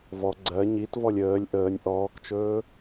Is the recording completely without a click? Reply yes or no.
no